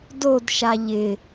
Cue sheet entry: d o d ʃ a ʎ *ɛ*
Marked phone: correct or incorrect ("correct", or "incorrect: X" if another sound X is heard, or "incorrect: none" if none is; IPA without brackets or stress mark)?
incorrect: ɪ